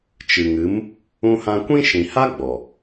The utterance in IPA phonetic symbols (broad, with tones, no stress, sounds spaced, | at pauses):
t͡ʃ ɨ˨ ŋ ɨ˨˦ m | ũ˧ h ã˧ kʷ ĩ˦ ʃ ĩ˨ h a˦ ɡ͡b ɔ˨